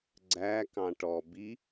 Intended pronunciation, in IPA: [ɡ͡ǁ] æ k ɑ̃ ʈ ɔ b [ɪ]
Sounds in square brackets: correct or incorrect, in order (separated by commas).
incorrect, incorrect